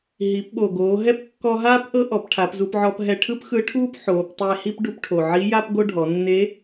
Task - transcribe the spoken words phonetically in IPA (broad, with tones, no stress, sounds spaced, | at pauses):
ɦ i˩˧ p ɓ o˩ ɡ oː˩˧ ɦ ɛ˥ p kː ɔ˧ ɦ aː˥ p ʔ ɤ˥ ʔ ɔ˩˧ p ʈʰ a˩˧ p z u˧ p ʕ ɔ˧ p ɦ ɛ˧ ʈʰ ɯ˥ p x ɯ˧˥ ʈʰ uː˥ p ħ oː˩˧ p tˤ e˧ h i˥ p ɖ u˧ p ʈʰ o˩ ʕ i˧˥ j a˥ p ɡ o˥ ɖʱ ɔ˩˧ nː e˧˥